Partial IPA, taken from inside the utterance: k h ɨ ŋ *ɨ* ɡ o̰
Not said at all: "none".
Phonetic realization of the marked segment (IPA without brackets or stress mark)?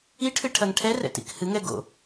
ɛ